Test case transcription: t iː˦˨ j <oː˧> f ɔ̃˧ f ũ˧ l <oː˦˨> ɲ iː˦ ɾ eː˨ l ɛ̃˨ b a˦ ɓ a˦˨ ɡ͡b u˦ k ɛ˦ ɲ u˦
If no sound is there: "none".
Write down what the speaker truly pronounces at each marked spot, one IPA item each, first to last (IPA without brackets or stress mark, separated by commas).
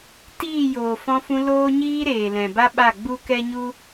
oː˨, oː˦